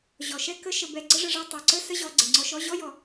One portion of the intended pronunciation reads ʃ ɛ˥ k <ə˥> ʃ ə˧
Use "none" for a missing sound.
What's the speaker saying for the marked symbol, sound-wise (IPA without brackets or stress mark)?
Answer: ə˥